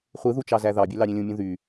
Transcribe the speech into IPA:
χʷ ɯ ð u t͡ʃ ɑ z æ ð ɑ bʲ ø l ɑ ɾʲ ẽ lʲ ũ mʲ ũ ð y

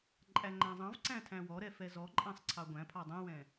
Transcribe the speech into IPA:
ǃʼ æ ŋ͡ǃ æ̃ zˤ ɑ̃ v ǀ æ̃ tʰ æ̃ w ɔ ɾ ɛ f ɛ z ɔ ǃʼ æ̃ sˤ ǀʰ ɑ ɡʷ æ̃ pʰ ɑ dˤ ũ w ɛ̃

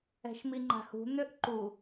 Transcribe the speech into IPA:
ɛ̤ ʃ m i ŋ͡ǃ a̤ h ṳ n̪ ø ʔ ǃ u

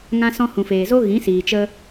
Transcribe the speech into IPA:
ŋ ã˧ s ɔ̃˧ h ũ˨ f eː˨ z o˦ ɣ ĩ˨˦ s iː˨ t͡ʃ ə˧

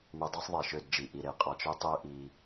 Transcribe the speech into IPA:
m ʉ˧ dˤ ɛ˥ sˤ ðˤ i˧˩ ʃ ø˥˧ d d͡ʒ i˧˩ ʔ i˥˧ ɾ e˥˧ qʼ ɑ˥˧ t͡ʃ ø˥ tˤ ø˥ ʔ i˧

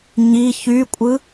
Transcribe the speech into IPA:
ɲ i ç y kʷʼ ɯ

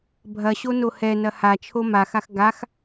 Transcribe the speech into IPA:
bʱ ɐ ɕ o n o h ɛ n ɐ h a t͡ʃʰ o m a x a x ɡ a x

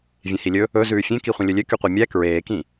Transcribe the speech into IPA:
vʲ ẽ h i lʲ ɵ | ɵ z ʉː fʲ ẽ k i χʷ ẽ lʲ ɵ lʲ ø k y qʷ ɛ mʲ æ k ɹ eː k ĩ

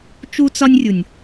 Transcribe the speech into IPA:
t͡ʃ u˧ t͡s ɒ˧ nʲ rʲ u˨ nʲ

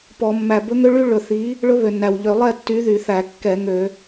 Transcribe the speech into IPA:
p ɔ˧˩˧ mː æ˨˩ b ɵ˦˥ ŋ ø˦˥ ɭ y˦˥ ɭ ɵ˨˩ θ i˨˥ | ɭ ɵ˦˥ β ø˨˩ nː æ˨˩ w ʎ ø˧˩˧ lˠ ɛ˥˩ tː y˨˥ ð y˧˩˧ θ æ˧˩˧ kː ɛ˧˩˧ ŋ ø˧˩˧

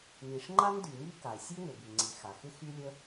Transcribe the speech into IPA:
n i˩ ʂ ŋ͡ǃ a˥ n d y˩ ŋ i˥ k a˩ ɪ̯ sʲ ø˥ ŋ ø˩ b y˩ ŋ͡ǀ i˩ x a˩ x ɪ˥ x y˥ lʲ ə˥

